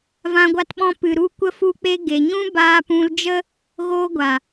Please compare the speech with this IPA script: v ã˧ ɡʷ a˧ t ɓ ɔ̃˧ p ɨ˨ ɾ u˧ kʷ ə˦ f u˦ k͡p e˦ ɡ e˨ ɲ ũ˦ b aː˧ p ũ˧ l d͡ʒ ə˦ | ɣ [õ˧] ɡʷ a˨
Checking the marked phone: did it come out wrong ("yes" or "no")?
yes